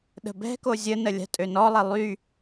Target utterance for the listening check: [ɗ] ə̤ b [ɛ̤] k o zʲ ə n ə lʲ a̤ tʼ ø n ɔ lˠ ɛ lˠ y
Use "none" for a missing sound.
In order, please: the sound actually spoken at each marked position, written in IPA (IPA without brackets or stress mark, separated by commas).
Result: ɗ, ɛ̤